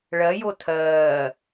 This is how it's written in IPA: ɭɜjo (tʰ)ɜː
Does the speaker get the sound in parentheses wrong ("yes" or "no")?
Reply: no